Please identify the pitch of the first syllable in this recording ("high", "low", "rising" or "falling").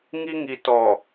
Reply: high